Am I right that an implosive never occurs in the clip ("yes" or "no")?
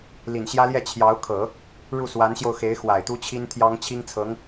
yes